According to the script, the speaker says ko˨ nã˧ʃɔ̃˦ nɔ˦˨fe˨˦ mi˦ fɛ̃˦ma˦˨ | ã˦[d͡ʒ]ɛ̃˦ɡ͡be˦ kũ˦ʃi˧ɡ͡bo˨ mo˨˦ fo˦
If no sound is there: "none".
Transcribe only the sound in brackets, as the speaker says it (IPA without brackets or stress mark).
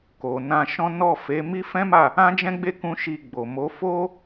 d͡ʒ